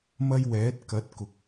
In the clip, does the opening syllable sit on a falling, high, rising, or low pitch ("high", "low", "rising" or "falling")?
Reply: high